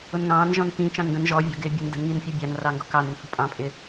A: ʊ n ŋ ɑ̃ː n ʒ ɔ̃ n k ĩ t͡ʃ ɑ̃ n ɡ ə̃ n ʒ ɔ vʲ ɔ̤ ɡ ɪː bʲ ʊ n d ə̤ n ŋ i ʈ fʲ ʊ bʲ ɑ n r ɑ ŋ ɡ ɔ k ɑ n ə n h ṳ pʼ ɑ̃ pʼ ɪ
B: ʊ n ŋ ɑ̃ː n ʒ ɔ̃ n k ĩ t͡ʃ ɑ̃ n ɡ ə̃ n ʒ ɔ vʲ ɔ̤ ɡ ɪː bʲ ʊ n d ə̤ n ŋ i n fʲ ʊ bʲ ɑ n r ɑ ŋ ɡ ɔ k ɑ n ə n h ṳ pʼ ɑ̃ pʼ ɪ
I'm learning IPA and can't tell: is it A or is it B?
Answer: B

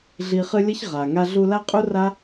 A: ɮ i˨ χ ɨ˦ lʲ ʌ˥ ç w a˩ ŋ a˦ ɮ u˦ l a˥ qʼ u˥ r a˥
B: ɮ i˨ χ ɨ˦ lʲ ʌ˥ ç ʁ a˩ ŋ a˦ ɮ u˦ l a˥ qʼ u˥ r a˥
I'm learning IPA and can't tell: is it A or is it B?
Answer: B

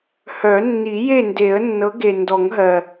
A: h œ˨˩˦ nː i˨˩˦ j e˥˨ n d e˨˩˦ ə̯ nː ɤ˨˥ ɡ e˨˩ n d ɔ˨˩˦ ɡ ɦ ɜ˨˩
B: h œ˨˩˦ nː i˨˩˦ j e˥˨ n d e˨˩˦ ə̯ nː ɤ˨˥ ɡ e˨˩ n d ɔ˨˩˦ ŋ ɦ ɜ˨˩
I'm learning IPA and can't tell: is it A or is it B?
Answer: B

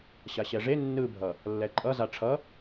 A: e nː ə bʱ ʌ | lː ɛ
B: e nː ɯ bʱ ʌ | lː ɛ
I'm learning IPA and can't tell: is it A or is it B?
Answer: B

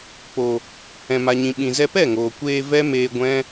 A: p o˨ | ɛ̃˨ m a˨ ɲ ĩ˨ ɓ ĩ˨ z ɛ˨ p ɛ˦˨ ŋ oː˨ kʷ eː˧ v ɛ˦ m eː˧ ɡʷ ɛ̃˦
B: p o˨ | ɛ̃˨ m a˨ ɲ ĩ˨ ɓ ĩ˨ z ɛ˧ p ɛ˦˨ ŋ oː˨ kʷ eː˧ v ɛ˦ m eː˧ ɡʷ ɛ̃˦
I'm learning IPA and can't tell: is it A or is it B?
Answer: B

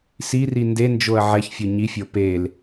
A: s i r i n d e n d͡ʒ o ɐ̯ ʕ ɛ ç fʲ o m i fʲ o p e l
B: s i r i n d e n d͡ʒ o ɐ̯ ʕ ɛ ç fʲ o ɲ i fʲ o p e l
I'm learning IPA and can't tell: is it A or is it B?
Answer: B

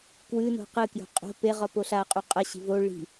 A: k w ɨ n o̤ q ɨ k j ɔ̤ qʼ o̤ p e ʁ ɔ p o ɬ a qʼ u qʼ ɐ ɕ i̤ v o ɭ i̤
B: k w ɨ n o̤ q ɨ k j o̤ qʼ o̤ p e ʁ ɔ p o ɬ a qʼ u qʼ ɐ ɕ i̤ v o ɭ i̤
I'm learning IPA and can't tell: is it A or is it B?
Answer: B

